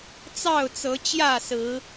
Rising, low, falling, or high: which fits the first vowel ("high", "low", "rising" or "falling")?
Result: falling